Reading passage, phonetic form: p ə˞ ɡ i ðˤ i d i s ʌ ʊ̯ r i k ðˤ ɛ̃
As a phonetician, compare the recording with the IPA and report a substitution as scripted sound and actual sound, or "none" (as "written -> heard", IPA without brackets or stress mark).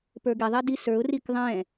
ʌ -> ə˞